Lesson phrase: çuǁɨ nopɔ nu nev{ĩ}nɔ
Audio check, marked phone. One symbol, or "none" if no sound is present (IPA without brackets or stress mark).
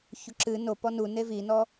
i